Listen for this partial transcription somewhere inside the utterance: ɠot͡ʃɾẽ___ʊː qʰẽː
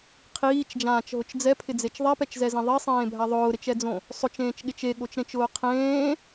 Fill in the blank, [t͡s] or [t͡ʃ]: t͡ʃ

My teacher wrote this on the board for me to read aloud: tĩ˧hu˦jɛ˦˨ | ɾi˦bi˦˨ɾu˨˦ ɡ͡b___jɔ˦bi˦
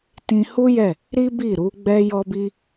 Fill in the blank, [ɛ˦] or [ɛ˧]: ɛ˦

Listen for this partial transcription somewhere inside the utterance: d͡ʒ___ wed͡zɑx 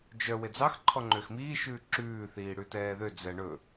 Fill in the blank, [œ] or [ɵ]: œ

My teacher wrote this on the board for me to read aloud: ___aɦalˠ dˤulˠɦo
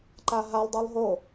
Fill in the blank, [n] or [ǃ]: ǃ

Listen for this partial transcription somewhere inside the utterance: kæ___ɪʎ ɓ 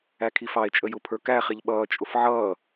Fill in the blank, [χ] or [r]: χ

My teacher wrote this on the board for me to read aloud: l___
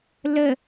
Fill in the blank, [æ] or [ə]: ə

